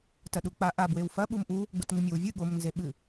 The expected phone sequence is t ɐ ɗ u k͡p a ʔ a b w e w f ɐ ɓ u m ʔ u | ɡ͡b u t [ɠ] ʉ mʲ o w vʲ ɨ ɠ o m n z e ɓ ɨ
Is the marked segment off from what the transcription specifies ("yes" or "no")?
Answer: yes